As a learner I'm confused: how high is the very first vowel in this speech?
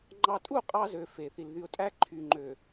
low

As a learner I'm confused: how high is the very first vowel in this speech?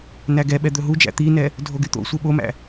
low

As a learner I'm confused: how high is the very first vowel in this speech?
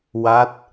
low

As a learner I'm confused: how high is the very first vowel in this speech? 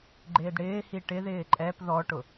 high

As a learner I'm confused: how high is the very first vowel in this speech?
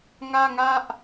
low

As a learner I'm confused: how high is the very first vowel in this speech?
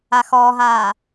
low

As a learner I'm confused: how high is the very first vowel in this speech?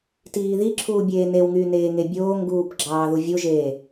high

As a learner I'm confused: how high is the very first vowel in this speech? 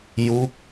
high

